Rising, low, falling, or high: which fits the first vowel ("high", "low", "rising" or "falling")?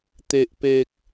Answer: low